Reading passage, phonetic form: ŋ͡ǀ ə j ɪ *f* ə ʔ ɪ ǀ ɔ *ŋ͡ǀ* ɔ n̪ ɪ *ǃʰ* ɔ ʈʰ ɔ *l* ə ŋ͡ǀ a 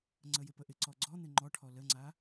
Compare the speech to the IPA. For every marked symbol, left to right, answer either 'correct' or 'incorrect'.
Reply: incorrect, incorrect, incorrect, correct

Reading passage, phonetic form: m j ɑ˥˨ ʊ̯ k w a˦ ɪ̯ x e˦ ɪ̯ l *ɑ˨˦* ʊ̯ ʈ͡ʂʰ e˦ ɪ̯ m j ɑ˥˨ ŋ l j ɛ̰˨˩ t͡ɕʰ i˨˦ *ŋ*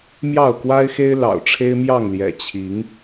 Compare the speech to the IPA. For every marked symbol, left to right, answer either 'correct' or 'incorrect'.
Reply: incorrect, correct

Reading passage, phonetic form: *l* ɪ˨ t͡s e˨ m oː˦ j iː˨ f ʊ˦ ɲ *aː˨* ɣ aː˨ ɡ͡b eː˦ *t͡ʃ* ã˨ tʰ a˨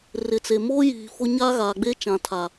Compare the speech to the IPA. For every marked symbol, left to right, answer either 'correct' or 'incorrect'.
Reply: incorrect, incorrect, correct

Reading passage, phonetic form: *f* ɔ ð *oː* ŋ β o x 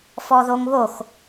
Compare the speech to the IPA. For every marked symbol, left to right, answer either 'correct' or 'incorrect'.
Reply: correct, incorrect

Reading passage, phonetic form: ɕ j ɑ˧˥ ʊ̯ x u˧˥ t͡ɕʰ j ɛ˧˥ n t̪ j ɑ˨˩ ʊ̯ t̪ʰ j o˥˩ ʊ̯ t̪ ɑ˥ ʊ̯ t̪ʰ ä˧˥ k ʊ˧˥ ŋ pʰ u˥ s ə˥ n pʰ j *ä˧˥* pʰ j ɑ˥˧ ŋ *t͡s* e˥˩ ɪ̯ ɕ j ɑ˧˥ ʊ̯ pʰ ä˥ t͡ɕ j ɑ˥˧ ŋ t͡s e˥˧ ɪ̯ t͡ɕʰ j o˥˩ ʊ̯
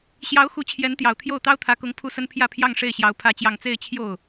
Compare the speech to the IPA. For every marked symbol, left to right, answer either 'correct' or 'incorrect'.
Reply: incorrect, incorrect

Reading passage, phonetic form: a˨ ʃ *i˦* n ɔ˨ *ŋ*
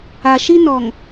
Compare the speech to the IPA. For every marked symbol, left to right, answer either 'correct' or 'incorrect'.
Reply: correct, correct

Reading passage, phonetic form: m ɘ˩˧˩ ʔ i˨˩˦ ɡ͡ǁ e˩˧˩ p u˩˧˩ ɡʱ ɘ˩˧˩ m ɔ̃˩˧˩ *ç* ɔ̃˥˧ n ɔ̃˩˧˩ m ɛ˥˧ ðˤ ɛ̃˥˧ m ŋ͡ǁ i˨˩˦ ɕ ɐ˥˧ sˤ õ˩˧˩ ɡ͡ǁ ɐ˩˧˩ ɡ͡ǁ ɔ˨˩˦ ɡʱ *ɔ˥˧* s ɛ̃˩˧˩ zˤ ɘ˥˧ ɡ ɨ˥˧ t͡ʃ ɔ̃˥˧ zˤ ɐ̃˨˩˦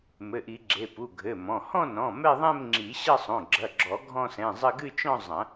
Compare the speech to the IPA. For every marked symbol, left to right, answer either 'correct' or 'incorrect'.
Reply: incorrect, incorrect

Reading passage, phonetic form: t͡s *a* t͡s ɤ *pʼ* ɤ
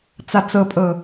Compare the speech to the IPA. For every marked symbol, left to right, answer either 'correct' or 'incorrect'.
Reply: correct, correct

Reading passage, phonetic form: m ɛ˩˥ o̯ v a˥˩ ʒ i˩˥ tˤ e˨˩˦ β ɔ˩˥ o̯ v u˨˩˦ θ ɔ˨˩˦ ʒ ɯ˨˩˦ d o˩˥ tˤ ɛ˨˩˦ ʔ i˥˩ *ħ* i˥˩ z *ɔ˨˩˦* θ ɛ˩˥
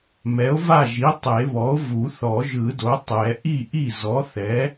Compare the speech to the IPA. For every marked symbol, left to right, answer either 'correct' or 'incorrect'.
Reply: incorrect, incorrect

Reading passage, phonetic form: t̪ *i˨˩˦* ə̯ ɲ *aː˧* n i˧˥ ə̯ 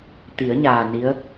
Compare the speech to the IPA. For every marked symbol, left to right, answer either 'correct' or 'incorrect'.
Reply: correct, incorrect

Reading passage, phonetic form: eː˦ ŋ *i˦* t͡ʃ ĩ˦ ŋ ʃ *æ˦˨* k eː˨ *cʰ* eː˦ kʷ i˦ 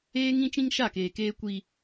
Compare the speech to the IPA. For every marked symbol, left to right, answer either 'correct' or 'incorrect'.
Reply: incorrect, incorrect, incorrect

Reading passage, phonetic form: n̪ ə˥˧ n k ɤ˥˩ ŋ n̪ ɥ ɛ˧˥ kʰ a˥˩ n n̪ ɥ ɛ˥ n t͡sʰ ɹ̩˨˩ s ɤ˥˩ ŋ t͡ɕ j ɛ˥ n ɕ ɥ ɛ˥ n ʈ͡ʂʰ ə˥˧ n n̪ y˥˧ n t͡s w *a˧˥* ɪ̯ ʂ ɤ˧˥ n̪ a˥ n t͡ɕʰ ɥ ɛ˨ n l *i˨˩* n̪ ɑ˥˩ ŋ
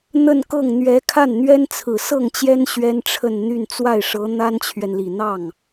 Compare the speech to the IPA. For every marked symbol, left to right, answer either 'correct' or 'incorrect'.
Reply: incorrect, correct

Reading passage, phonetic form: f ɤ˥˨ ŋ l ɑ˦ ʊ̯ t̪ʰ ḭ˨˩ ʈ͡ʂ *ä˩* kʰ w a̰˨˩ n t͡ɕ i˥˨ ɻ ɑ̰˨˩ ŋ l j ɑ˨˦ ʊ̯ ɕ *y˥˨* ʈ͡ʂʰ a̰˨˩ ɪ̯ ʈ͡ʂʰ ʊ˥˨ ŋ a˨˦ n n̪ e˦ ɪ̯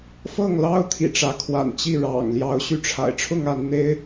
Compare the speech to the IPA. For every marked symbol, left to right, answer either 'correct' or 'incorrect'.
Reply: incorrect, incorrect

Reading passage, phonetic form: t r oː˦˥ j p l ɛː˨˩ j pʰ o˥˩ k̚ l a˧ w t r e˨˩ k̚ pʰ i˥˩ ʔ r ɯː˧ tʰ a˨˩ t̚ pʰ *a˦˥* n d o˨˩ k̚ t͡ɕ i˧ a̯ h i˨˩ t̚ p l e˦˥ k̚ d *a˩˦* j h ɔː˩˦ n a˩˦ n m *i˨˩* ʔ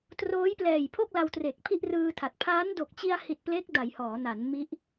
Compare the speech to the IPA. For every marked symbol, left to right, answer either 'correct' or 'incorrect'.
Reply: incorrect, correct, incorrect

